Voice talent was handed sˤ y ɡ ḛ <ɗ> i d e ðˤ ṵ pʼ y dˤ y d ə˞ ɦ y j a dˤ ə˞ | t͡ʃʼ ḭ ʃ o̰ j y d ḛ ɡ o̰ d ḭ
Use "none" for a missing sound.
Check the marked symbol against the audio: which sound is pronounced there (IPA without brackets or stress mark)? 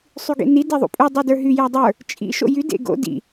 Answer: n